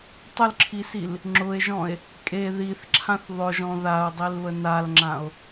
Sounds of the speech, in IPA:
tˤʊlǁʰisil | ŋ͡ǁʊe̯ʒɔ̃e̯ | kʼe ðiθǁʰãθ ðˤʊʒɔ̃ ðao̯dˤilβə nalŋ͡ǁão̯

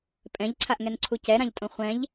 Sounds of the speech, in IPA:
pʼɛ̃ʎǀʰaʔŋɛnǀʰu cɛɾãʎtʼõ χʷɛ̃ʎ

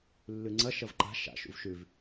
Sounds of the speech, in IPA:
lːʉŋ͡ǀɐ ʃɐvǃa̤ ʃa̰ ʃṵvʃʉv

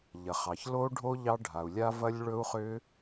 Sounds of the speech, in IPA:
ʎɐ˩χɑ˩çlo˦˥ɖʱo˦˥ ʎɑ˦˥ɖʱa˩u̯lʲa˦˥ vɐ˦˥lʲɭɵ˦˥u̯χʏ˦˥

